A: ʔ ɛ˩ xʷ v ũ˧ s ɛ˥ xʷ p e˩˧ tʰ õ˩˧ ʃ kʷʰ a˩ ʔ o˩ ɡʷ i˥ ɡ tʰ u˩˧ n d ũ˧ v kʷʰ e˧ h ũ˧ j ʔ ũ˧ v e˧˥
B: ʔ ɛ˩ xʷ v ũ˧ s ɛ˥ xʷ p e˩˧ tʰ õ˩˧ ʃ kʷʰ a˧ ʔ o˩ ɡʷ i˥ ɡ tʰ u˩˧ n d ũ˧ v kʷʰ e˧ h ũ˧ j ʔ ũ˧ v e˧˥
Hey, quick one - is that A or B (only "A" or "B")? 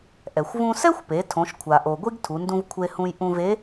A